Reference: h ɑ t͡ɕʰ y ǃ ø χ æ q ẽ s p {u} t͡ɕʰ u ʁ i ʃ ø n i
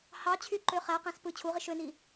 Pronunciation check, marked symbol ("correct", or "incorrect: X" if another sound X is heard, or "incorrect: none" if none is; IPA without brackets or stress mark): incorrect: ɯ